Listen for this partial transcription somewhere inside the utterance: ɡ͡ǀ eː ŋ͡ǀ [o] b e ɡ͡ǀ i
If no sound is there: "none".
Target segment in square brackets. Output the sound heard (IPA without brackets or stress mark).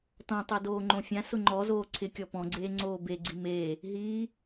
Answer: oː